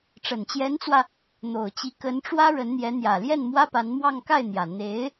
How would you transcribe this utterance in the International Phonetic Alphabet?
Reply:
ʈ͡ʂ ə˨˩ n t͡ɕ j ɛ˧˥ n t͡s w ä˧ | n̪ o˨˩ ʊ̯ t͡ɕ i˧˥ k ə˧˥ n ʈ͡ʂ w ä˥ ɻ ə˧˥ n n̪ j ɛ˧˥ n̪ j ä˨˩ l j ɛ˥˩ n m w ä˥ p a˧˥ n m w ɑ˥˧ ŋ k a˥˩ ɪ̯ n̪ j ä˨˩ n̪ e˧˥ ɪ̯

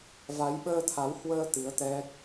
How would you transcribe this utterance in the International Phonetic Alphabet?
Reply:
v a˨˦ j ɓ əː˧ t̪ʰ a˨˦ w h w əː˧ t̪ ɨ˨˦ ə̯ t̪ ɛ˦˥ k̚

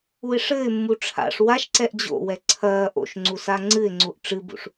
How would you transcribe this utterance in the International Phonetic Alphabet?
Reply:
u ɪ̯ ʂ ɘː ɪ̯ mː u ʈ͡ʂʰ a̰ ʂ w a ʃ ǀ ɛ ʔ d͡ʑ o̰ w ɛ ǀʰ ɐː ʔ o̰ ʃ ŋ͡ǀ u s a ŋ͡ǀ ɨ ɪ̯ ŋ͡ǀ u ʔ ʈ͡ʂ ɨ b ṵ ʂ

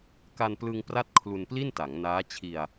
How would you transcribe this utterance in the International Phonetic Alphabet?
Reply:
k a˧ n p l ɯ˧ ŋ p r a˥˩ t̚ kʰ l u˧ n p l i˥˩ n t a˩˦ ŋ n aː˦˥ t͡ɕʰ i˧ a̯

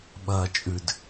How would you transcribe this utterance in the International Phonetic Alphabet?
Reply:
ɓ ɐː t͡ʃʼ ʉ d

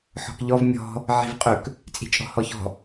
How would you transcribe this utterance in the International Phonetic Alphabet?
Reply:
ħ ɔ̤ k ʎ ɔ v mʲ ɔ̤ | ʕ i̤ v qʼ ɵ k | t͡sʼ i̤ t͡ʃʼ ɔ̤ h ɔ ç ɔ̤

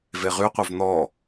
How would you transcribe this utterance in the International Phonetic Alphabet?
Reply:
v e ʁ y qʷ œ v n̪ ɔ

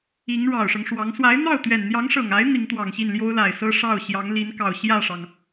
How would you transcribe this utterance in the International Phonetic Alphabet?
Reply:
i˧˥ ŋ ɻ ɑ˨˩ ʊ̯ ʂ ɤ˦ ŋ ʂ w ɑ˧˥ ŋ s w a˧˥ ɪ̯ n̪ ɑ˥˩ ʊ̯ t̪ ɥ ɛ˨˩ n n̪ j ɑ˧˥ ŋ ʂ ɤ˨˩ ŋ a˧˥ ɪ̯ n̪ i˧˥ ŋ t̪ w ɑ˨˩ ŋ ɕ i˥˩ n l j o˥ ʊ̯ l a˨˩ ɪ̯ s ɤ˥ ʂ ɑ˥˩ ʊ̯ ɕ j ɑ˧˥ ŋ l i˧˥ n k ɑ˨˩ ʊ̯ ɕ j ä˥˩ ʂ ɑ˩ ŋ

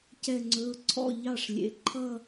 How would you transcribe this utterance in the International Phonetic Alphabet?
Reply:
c ɛ˧˩ ŋ͡ǀ ɵ˩˧˩ ʊ̯ ǀʰ ɔ̰˥˩ ʎ ɑ˥˩ ʂ lʲ ḛ˩˥ ǃʰ ʌ˥˧

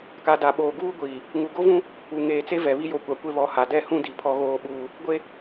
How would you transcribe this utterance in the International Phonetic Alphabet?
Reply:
k a˨ d a˨ ɓ oː˨ ɡ uː˦ ɡʷ iː˨ | ŋ u˨ ɡ o˦ v ũ˦ | u˨ ŋ eː˨ t͡s e˦ v ɛ˨ β i˦ j o˨˦ kʷ a˨ kʷ e˦ β ɔ˨ h a˨ d ɛ˦˨ h ũ˦ d i˨ pʰ ɔ˦ ɣ oː˦ ɓ uː˦ | ɡʷ e˦

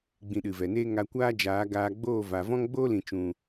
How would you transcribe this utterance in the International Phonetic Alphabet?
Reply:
ɡ͡b ĩ˧ ɗ ɨ˨ v ɛ˨ n eː˦ ŋ a˧ kʷ aː˦ d͡ʒ aː˨˦ ɡ aː˧ ɡ͡b oː˦˨ v a˨ v ɔ̃˦ ŋ ɡ͡b oː˦ l ĩ˨ t͡ʃ ũ˨

